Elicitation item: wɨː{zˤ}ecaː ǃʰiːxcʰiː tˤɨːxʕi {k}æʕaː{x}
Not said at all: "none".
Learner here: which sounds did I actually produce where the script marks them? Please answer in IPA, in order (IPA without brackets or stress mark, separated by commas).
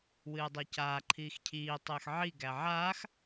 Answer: dˤ, ɡ, x